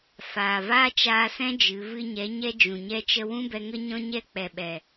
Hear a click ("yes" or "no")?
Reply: no